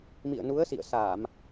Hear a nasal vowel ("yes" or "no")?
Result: no